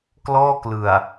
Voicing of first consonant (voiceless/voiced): voiceless